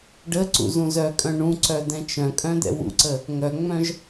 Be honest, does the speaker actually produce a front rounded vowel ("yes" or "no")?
yes